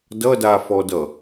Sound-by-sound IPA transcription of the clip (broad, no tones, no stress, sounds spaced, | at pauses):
d ʌ d a f ɔ d ʌ